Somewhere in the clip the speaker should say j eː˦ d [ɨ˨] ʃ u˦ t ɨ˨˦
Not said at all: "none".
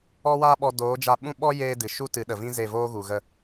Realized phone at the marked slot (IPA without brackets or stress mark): ɨ˨